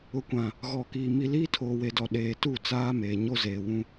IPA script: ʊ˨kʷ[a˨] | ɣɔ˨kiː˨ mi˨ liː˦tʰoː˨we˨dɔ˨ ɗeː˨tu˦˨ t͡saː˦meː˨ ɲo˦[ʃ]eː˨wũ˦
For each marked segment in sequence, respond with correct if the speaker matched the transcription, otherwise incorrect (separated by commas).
incorrect, incorrect